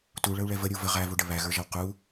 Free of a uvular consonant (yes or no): no